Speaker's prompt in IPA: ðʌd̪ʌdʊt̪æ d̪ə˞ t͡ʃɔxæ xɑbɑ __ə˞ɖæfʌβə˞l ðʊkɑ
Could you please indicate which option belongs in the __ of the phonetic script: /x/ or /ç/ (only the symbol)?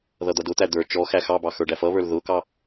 x